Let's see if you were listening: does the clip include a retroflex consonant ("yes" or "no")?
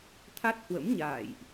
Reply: no